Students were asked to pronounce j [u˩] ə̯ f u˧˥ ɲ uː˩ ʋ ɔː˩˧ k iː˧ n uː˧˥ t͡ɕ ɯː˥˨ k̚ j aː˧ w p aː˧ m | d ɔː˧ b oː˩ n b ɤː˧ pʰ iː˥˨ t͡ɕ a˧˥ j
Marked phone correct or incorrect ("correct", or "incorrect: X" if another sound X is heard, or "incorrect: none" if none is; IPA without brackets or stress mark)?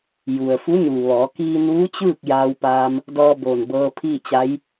correct